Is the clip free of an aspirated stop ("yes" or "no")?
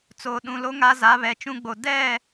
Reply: yes